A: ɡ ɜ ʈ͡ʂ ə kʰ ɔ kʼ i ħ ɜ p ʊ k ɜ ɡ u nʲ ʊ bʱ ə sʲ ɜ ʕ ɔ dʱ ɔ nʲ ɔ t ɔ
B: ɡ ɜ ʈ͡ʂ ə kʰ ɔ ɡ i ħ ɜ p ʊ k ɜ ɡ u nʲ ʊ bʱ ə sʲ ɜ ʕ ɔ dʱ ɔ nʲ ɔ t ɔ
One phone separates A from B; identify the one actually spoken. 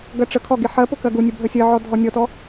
B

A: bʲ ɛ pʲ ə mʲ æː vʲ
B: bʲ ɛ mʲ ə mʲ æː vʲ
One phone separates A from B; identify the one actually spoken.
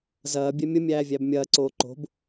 B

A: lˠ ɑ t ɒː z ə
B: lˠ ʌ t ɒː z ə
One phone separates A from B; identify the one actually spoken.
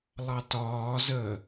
A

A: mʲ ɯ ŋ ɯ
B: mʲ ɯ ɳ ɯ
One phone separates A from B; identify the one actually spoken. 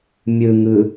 A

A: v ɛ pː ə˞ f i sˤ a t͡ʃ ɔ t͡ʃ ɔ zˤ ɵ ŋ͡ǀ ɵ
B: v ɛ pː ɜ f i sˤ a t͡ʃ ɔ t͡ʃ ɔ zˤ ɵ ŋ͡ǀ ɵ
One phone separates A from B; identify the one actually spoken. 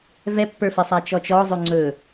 A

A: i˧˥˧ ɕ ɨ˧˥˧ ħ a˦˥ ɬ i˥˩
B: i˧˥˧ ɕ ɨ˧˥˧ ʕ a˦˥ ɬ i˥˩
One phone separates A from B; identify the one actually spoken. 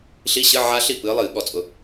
B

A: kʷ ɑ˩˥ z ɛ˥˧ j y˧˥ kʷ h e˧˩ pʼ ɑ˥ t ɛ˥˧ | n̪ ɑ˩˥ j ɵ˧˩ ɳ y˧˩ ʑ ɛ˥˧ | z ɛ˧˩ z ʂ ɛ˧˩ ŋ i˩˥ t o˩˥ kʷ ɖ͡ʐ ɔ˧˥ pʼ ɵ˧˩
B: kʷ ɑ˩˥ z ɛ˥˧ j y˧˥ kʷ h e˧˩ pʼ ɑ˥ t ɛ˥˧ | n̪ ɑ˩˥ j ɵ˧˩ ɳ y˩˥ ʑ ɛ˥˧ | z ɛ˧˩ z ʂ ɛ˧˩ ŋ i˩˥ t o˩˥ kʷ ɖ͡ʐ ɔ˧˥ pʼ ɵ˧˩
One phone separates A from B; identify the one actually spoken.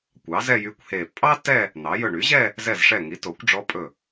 B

